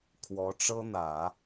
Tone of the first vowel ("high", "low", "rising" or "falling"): rising